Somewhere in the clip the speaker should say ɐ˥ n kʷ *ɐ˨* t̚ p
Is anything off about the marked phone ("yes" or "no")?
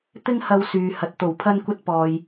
yes